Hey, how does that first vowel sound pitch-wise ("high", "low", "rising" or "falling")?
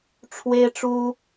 high